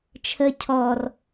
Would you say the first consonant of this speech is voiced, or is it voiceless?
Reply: voiceless